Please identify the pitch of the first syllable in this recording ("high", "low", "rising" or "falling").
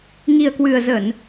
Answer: low